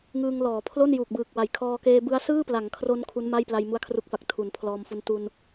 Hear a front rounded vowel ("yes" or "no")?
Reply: no